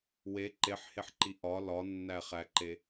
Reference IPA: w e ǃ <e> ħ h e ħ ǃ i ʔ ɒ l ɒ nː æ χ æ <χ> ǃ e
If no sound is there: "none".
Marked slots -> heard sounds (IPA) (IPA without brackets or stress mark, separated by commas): e, none